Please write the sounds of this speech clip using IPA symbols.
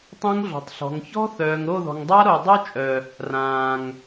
tˤ ɛ̃˦ ŋ ɮ ɔ̤˨ tˤ ɬ ɔ̤˨ ŋ ç ɔ̤˦ θ œː˨ ŋ ɾ o˦˨ ð ɔ̤˨ ŋ dˤ a˦ ɾ o˨ dˤ œ˦ t͡ʃʼ œ˨ | r ãː˨ ŋ

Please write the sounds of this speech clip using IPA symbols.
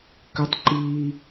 k ʏ˦ tˤ ǃ iː˦

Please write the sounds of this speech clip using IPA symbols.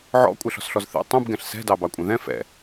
ʕ ɔ̰ kʷʼ ɛ ɬ ɔ̤ s ɬ ɔ z θ ḛ tˤ ũ b ɡ ɛ̃ ɬ s ɛ̤ d ɑ b ɑ kʷʼ ɛ̃ ð ɛ̃ f ɛ̰

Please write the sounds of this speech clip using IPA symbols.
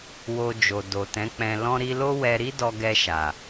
w o˧ d͡ʒ o˨ d o˨ t ɛ̃˨˦ k͡p ɛ̃˧ l ɔ̃˦ ɾ i˦ l o˦ w ɛ˧ ɾ i˦ d ɔ˧ ɡ ɛ˧ ʃ a˨

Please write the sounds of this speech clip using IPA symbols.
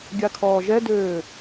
ɡʲ a kʰ ɔː ʒ ɛ d øː

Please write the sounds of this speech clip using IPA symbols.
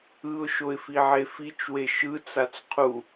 ɯ ʊ̯ ʃ o ɪ̯ f i ʕ e f i t͡ʃ w e ʃ ɯ t͡s a t͡s qʰ u

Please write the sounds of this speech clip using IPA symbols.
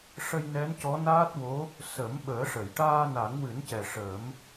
ʂ ə˧ j n ɛ˧˥ n c ɔ˧˥ n aː˦˥ t̚ w o˧˥ | s ə˨˩˦ m ɓ əː˨˩˦ ʂ ə˨˩˨ j ʈ aː˧ n a˨˩˦ ŋ w ɨ˨˩˦ n c ɛ˨˩ ʂ əː˨˩˦ m

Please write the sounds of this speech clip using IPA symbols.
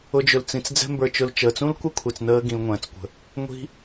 ʊ˧ d͡ʒ ɵ˨ l t͡s ĩ˨ t͡s d͡z ɛ̤˦ m b ə˞˧ t͡ʃ ʊ˧ l t͡ʃ əː˨ t͡s ũ˦ l kʷ ɐ˦ kʷʰ ɛ˨ t͡s n əː˦ ɡ ĩ˧ l ŋʷ ɛ̃ː˨ t͡s kʷ ə̤˧ | ŋʷ i̤˦

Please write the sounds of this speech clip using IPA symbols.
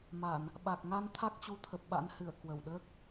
m a˧˩˨ n | ɓ a˨˩ k̚ ŋ a˧ n t̪ʰ a˦˥ k̚ t͡ɕ u˨˦ t̪ʰ ə˨˩ p̚ ɓ a̰˧˥ n h ɨ˧˩ ə̯ k w ə˧˩ w ɗ əː˦˥ k̚

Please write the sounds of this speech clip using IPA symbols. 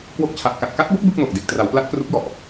k w o˦˥ k̚ t͡ɕʰ a˨˩ ʔ k a˨˩ t̚ k a˦˥ t̚ b o˦˥ k̚ b ɯ˥˩ k̚ n o˨˩ k̚ d e˨˩ k̚ t r a˩˦ w p l a˦˥ t̚ k r u˦˥ k̚ j ɔ˨˩ ʔ

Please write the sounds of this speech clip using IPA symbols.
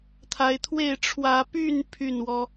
t̪ʰ a˨˦ ɪ̯ t̪ʰ w e˥˨ ɪ̯ ʈ͡ʂʰ w ä˨˦ p y˥˨ n pʰ y˥˨ n w ɔ˦

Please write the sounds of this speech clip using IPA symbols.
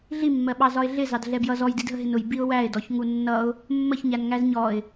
ɮ i mː ɜ ɓ ɑ z ɒ ɪ̯ ɮ ɪ z ɑ d ɮ ɛ b j ʌ z ɔ j d i d ɦ ə ɦ ɪ n ʊ j b i ʊ̯ w æ ɪ̯ d ɔ ç ŋ u nː ʌ ʊ̯ | mː ə ç ɲ æ n ŋ æ z ɲ ɔ ɪ̯

